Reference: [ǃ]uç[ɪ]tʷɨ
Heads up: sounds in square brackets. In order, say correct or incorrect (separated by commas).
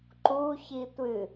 correct, incorrect